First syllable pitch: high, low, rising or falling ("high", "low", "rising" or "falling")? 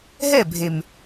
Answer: falling